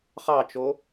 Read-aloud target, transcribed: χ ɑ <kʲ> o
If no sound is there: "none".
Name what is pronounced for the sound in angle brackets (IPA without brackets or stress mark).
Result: t͡ʃ